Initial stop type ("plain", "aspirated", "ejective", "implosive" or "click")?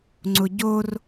click